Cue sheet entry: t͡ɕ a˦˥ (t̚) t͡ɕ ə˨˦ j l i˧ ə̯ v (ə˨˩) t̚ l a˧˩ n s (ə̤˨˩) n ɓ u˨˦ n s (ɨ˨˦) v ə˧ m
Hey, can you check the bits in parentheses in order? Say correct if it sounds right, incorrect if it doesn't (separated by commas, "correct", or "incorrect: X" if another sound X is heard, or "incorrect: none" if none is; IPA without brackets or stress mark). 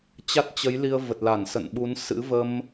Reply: correct, correct, incorrect: ə̰˧˨, incorrect: ɨ̰˧˥